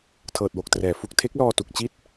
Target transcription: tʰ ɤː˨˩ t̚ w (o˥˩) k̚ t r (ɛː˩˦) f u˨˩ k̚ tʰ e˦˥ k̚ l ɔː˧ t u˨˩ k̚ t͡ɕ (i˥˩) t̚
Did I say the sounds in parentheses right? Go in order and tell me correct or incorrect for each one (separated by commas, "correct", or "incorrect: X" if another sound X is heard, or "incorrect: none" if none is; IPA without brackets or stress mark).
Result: incorrect: o˨˩, correct, correct